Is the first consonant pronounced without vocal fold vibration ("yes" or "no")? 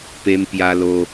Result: yes